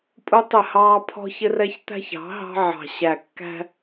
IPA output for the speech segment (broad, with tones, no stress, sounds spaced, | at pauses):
pʼ u˦ tˤ ɪ˦˨ h ɑː˦ pʰ ɔ̤˦ ç ɪ˦ r ɛ˦ ç t̪ æ̤˦ ç ɑ̤˨˦ ɦ ɑ̤˦ ʕ ɑ̤˨ ɕ æ˨ kː æ̤˦